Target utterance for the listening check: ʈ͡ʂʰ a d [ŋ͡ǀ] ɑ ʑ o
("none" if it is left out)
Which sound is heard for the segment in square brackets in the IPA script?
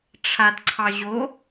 ǀʰ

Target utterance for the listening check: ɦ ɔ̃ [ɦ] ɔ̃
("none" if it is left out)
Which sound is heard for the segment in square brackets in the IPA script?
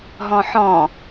ħ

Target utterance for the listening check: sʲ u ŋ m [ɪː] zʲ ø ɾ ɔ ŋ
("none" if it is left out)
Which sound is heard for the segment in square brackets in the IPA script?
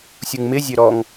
ɪ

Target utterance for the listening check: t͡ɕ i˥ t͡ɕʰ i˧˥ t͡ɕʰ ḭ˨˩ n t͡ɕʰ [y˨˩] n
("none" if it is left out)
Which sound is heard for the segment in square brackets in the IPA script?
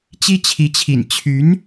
y˧˥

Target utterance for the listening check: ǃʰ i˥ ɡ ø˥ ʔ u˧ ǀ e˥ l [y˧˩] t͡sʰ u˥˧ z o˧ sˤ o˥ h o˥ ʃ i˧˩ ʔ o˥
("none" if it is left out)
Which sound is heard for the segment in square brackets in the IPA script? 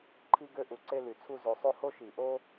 y˧˩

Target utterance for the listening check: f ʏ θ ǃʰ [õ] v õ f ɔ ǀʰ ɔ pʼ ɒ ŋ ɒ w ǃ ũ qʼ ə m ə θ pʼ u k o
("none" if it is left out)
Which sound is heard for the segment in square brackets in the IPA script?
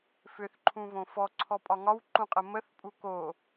ũ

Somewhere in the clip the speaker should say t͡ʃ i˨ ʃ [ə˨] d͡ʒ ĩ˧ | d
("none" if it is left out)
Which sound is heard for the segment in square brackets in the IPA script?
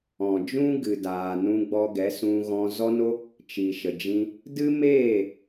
ə˨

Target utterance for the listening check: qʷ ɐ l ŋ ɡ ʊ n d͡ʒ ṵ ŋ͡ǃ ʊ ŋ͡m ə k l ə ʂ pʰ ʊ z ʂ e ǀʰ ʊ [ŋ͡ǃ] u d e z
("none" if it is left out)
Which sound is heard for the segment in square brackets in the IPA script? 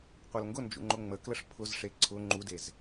ŋ͡ǃ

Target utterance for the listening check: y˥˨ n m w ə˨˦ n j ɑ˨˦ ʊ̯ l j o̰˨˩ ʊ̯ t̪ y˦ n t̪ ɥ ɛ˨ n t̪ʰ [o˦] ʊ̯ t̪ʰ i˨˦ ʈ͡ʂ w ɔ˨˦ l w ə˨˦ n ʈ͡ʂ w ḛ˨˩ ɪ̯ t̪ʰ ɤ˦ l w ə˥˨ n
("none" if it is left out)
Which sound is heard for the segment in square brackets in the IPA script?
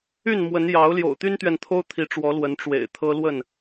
o˦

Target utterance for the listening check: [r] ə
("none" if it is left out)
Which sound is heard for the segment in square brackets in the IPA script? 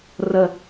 r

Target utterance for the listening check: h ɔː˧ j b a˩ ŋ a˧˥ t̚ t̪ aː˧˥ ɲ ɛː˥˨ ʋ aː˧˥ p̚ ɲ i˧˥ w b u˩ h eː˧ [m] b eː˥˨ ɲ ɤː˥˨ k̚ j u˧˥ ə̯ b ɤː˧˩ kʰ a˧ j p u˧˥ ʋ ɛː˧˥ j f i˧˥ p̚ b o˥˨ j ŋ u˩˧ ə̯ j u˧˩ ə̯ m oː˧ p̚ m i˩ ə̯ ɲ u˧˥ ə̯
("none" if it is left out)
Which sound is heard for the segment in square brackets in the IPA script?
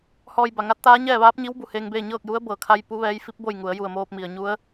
ŋ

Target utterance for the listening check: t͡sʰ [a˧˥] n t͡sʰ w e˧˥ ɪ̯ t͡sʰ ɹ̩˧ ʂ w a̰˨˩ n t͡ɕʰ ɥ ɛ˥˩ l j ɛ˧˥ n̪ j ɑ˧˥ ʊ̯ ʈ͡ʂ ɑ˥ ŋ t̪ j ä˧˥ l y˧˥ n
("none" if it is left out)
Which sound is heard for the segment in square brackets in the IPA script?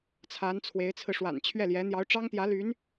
a˧˥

